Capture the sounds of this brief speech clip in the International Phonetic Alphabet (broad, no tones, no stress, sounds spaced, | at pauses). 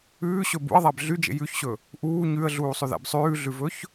ʉː ɕ ɵ b ṵ ə̯ ðˤ æ b ɮ y d͡ʒ ḛ j ʉ ç ɕ ɵ | ʔ uː ɲ ʉ ə̯ ɮ uː sˤ ʉ ð æ̰ b sˤ ʉː ɮ ʉ v ɵ ç